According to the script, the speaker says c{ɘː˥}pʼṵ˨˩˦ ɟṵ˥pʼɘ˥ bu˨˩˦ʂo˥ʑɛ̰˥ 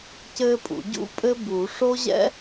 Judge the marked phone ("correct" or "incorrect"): correct